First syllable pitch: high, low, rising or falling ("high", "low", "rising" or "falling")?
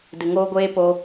low